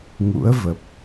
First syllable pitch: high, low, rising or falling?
rising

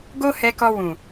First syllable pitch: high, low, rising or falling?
high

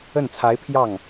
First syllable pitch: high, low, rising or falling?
falling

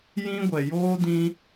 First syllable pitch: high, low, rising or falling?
high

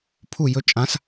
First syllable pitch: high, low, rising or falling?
falling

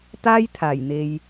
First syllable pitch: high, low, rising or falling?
high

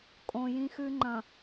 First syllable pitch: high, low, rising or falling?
low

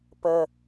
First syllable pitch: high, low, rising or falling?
low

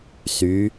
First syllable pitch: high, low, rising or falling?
rising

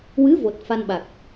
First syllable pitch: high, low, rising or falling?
rising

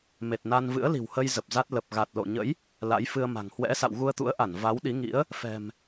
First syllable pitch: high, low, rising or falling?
low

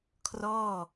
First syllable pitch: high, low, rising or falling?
falling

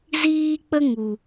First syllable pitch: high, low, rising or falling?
high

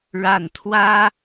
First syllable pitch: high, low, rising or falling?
low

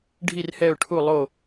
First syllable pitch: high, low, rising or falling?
falling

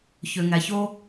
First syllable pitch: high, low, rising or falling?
low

